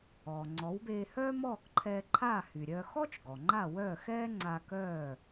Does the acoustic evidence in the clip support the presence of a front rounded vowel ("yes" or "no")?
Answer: yes